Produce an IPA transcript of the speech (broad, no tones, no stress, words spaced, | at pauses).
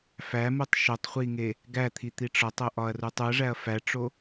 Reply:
fæmutˤ ʃotˤχʷiŋe | ɡæt̪ʰit̪i ʈ͡ʂɒtˤoʔɒɐ̯ru tˤuɐ̯ʐæɐ̯ fæʈ͡ʂo